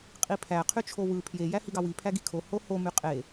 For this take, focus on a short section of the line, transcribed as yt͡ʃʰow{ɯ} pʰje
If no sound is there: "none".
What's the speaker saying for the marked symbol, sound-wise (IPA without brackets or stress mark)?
ɯ